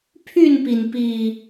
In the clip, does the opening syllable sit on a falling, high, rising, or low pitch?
falling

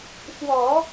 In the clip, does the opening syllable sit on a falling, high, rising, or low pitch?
low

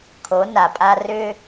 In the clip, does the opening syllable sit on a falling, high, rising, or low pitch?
rising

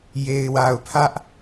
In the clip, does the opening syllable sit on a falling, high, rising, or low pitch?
low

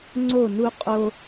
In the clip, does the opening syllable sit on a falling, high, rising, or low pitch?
falling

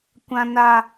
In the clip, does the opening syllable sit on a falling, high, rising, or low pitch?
high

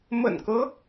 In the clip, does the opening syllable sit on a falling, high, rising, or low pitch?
low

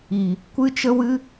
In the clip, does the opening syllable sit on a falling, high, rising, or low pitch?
low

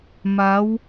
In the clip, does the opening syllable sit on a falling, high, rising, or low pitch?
rising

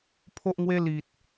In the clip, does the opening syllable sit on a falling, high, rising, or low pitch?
high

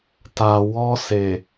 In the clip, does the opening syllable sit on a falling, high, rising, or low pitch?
low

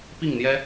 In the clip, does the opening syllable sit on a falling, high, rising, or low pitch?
falling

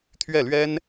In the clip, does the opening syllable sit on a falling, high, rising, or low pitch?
falling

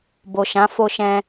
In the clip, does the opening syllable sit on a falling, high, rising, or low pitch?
low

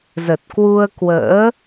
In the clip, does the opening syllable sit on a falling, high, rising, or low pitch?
low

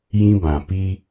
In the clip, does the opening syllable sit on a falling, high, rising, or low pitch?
high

